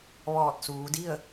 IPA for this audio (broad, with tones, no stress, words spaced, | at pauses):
ʋɔː˧˩t̚suː˩˧di˥˨ə̯